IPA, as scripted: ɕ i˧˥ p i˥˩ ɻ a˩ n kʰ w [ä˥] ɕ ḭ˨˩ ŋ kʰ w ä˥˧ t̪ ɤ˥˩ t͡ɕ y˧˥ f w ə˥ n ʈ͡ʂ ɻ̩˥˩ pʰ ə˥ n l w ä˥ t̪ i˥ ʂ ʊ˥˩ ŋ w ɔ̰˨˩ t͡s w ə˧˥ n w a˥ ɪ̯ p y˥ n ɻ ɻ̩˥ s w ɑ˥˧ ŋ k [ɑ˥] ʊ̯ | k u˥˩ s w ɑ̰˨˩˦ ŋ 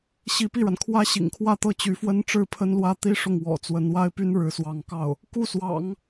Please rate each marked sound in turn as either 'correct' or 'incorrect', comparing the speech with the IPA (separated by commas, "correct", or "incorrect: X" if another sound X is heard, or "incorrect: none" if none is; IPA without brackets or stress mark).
correct, incorrect: ɑ˥˩